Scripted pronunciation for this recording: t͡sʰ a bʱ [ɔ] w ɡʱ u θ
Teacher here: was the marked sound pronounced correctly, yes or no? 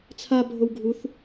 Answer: no